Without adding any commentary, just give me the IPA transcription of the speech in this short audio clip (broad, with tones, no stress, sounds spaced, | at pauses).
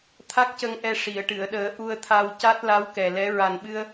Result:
t̪ʰ a˦˥ k̚ c ə˧ ŋ ʔ ɛ˧ ʂ i˨˩˨ ə̯ ʈ ɨ˨˩˨ ə̯ ɗ əː˨˩˦ ʔ u˧ ə̯ t̪ʰ a˧ w c a˦˥ t̚ l a˧˥ w k ɛ˨˩ l ɛ˧˥ ɹ a˨˩ n ɓ ɨ˧ ə̯